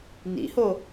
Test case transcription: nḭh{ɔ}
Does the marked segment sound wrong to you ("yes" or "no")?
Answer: yes